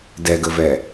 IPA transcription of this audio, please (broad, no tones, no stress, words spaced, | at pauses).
dɛɡəvɛ